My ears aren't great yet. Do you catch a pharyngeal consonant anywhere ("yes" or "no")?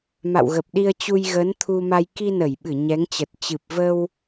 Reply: no